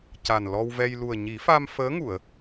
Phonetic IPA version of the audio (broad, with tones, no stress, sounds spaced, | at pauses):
c a˨˩ n l ɔ˧ w v ɛ˧ j l u˨˩ ə̯ ɲ i˨˩˦ f a˧ m f əː˧˥ ŋ u˨˩˨ ə̯